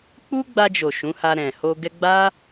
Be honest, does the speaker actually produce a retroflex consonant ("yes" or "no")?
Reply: no